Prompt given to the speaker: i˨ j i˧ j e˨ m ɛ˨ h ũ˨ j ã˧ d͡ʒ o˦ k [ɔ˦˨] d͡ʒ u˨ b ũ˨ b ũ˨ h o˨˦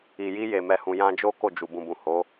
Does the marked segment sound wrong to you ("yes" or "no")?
yes